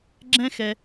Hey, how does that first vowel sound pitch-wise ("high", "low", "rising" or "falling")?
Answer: high